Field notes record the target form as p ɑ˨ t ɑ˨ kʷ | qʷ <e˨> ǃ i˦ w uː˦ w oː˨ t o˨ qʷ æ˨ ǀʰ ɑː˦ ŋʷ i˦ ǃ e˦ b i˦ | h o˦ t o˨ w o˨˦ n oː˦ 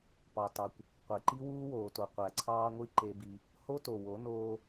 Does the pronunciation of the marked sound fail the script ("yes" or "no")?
no